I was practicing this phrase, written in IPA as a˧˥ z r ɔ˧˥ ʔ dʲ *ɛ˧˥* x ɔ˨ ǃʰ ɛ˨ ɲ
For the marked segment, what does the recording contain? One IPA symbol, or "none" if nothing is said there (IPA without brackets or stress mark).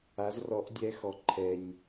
ɛ˧˥